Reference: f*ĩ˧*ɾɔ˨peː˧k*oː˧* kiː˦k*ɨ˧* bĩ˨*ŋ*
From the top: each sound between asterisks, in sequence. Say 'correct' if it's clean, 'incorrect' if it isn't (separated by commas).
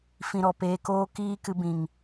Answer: correct, incorrect, correct, correct